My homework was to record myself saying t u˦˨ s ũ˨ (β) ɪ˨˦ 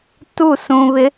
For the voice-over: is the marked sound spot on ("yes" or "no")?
yes